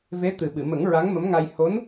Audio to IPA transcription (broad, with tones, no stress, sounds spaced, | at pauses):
v e˧˥ t̪ ɨ˨˩ ɓ ɨ˨˩˨ m ə˨˩˦ ŋ ɹ a˧˥ ŋ m ə˧˥ m ŋ a˧ j h o˧˥ n